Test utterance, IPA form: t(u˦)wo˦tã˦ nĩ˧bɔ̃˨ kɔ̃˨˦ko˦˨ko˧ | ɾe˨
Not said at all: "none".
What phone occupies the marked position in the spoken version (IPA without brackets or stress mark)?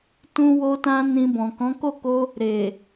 ũ˦